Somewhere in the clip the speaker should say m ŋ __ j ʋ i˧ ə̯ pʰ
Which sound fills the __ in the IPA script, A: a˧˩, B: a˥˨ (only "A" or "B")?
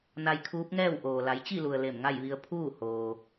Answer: B